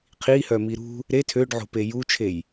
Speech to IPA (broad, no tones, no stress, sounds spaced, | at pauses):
qʰ i h œ m i ɾ ṳ | ɾ e tʰ ø ɖ ʕ o̤ p e j u t͡ʃʰ e j